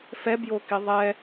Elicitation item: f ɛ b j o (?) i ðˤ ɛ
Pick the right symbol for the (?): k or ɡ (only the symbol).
k